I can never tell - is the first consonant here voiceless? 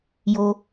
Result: no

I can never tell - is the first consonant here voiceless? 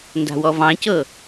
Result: no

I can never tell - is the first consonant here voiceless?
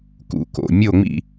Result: yes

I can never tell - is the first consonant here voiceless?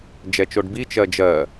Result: no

